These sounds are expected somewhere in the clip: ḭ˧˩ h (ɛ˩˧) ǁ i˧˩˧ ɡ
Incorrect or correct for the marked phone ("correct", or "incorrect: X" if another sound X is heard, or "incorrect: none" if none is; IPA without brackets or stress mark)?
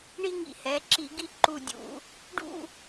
correct